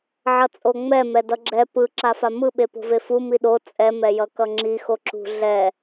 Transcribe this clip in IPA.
ʕ ʌ t͡sʼ o ŋ͡m ɛ m ɛ d ʌ ɡ͡ǁ ɛ p ɯ ǁ a f a m ɯ ɓ e p o̤ v e f u m i ɗ o t͡sʼ ɛ m ɛ j ʌ k ʌ ŋ͡ǁ i x o ǁ ṳ ɮ ɛ

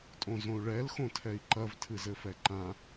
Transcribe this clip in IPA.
tʼ õ z õ u̯ ɭ ɛ l x õ tʰ ɛ i̯ ǃ ɐ v tʰ ɨ z ɘ f ɛ ǃ ã

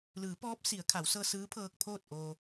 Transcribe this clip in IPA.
l ɯː˩˧ p ɔː˧˥ p̚ s i˩˧ ə̯ kʰ a˩˧ w s ɤː˧ s ɯː˧˥ pʰ ɤː˧ k̚ pʰ oː˥˨ t̚ ʔ oː˧

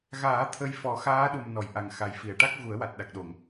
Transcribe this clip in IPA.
ɣ aː˨˩˦ t̪ʰ ə˧ j f ɔ˨˩˦ x aː˧˥ ɗ u˨˩ m n ɔ˨˩˨ j ʔ a˨˩ ŋ x a˨˩ j f i˨˩˨ ə̯ ʈ a˦˥ k̚ ɣ u˨˩˦ ə̯ w a˨˩ t̚ ɗ a˨˩ k̚ ɗ o˨˩˨ ŋ

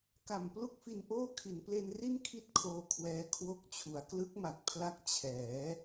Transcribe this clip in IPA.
k a˨˩ m p l u˥˩ k̚ f i˧ n ʔ oː˥˩ kʰ i˩˦ n p l e˧ n r i˥˩ n kʰ i˥˩ t̚ kʰ oː˧ kʰ w ɛː˧ kʰ w o˦˥ k̚ t͡ɕʰ u˩˦ a̯ k l ɯ˦˥ k̚ m a˨˩ k̚ pʰ l a˦˥ k̚ t͡ɕʰ ɛː˩˦

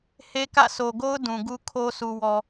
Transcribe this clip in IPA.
h e˦ k ä̰˦˨ sʰ o˨ ɡ o˦ ʊ̯ d ũ˨ ɡ u˦ kʰ o˦ sʰ u˨ w ɔ˨

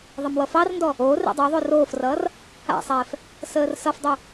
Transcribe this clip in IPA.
ðˤ ə m w ʌ f ɑ r n d ɔ | oː r ḛ dˤ o ðˤ o r oː f r ʌː r | a̰ sˤ ɛː f | s əː r s ʌ f dˤ o

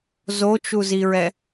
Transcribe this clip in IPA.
z o t͡ʃ u z i ɹ ɛ

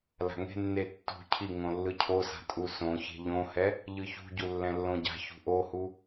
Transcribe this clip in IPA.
l a̤ ŋ e̤ nː e tː ṳ cʰ i ŋ õ lː ɯ cʰ o s a̤ tʼ u s õ ç e̤ ʎ õ h ɛ | ʎ ɯ ç ṳ ɟ u lː ɛ̃ lː õ ɟ a̤ ç ṳ ʔ o h u

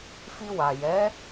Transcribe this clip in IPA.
f i˧ w a˨ j ɛ˨˦

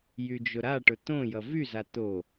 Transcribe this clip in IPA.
j y d͡ʒ ʊ ɾ a ʈ ʊ t̪ õ j ʌ v y z a t̪ o

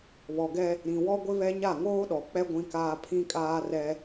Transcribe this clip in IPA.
β ɔ˨ ɡ ɛ˦ | ɾ ĩ˨ w ɔ˦ ɡʷ ɪ˦ β ɛ˦ ɲ a˦˨ ŋ oː˦ ɗ ɔ˨ k͡p ɛ˦ ɡʷ ĩ˦ k aː˦ pʰ ĩ˦ kʼ aː˦ r ɛ˦

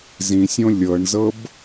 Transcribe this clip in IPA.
z ĩ sʲ õ lʲ ɤ ɳ z ɤ b

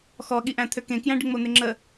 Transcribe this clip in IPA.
x ɔ ɠ i ʔ æ̃ t̪ʰ ø k ẽ k j æ̃ ɖ ɪ ŋ͡m o n̪ ɪ ŋ͡ǁ ə

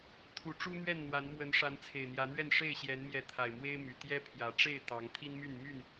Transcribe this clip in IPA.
t̪ʰ u˨˦ ʈ͡ʂ u˦ n̪ ɥ ɛ˥˨ n n̪ w a˨˦ n m w ə˨˦ n ʂ a˨˦ n t͡sʰ e˨˩ ɪ̯ n̪ j ä˨˦ n̪ ɥ ɛ˥˨ n ʂ e˥˨ ɪ̯ ɕ j ɛ˨˦ n m j ɛ˨˦ t̪ʰ a˨˩ ɪ̯ m w e˦ ɪ̯ m y˨˩ t̪ j ɛ˦ pʰ j ä˨˩ ʈ͡ʂ e˥˨ ɪ̯ t̪ ɑ˨˦ ŋ t̪ʰ i˦ n m y˥˨ n m y˥˨ n

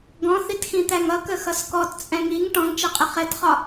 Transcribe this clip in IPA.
ɡ ɔ̃ θ i t x ĩ t̪ æ ŋ ʌ k ə x ʌ s k ɔ t t͡sʼ ɛ̃ ŋ i ŋ ʈ ɔ̃ ŋ t͡ʃ ɛ qʼ ɪ χ ɛ t χ ɒ

